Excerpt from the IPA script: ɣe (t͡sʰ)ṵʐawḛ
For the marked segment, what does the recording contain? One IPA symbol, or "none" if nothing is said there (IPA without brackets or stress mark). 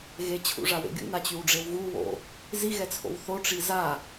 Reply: t͡ɕʰ